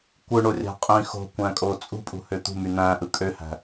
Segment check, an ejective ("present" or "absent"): present